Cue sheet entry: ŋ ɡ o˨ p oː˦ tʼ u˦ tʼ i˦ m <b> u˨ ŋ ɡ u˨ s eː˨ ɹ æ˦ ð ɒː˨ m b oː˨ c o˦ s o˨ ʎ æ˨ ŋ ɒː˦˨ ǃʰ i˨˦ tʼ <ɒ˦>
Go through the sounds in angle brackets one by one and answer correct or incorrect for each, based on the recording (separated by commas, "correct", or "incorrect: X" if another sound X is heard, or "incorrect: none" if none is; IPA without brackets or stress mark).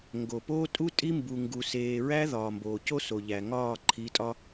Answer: correct, correct